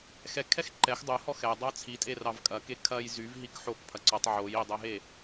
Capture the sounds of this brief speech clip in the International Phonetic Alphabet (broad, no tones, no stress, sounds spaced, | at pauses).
x ɛ kʰ ɛ x ǃ ɛ x dˤ o h ɔ x ɛ dˤ ɑ t͡sʰ i tʼ e r ɑ v kʼ ɐ k e kʰ ɐ j z y v ɦ i k ħ o k pʰ ɐ ǀ ɔ tˤ ʕ o j i dˤ ɛ ɦ e